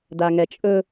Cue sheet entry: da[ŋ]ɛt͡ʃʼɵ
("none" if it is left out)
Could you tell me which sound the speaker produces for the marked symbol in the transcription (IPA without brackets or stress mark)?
ŋ